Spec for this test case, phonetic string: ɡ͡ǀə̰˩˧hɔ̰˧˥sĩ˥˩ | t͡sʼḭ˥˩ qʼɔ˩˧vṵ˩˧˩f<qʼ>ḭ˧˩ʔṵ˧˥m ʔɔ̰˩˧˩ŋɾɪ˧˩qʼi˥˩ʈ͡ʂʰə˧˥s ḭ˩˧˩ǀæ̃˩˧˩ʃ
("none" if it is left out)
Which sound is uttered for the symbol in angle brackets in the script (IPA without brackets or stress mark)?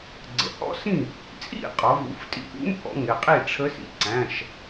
tʼ